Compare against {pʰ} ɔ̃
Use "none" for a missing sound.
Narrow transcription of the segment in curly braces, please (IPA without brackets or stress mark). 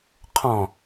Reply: qʰ